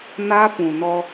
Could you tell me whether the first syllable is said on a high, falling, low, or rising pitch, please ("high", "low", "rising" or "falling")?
high